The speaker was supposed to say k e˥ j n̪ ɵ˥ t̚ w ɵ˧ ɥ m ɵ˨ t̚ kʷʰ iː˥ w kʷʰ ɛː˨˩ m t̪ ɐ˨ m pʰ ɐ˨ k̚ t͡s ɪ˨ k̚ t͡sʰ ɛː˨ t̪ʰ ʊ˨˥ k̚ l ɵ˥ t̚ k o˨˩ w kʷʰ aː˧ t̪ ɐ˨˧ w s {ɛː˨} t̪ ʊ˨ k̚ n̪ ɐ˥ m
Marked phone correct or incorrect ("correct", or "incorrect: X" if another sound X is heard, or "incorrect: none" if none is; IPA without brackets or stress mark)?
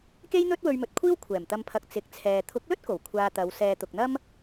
correct